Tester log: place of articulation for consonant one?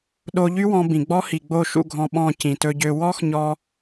alveolar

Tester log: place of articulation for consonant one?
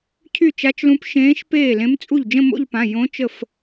palatal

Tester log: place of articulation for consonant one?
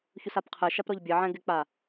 palatal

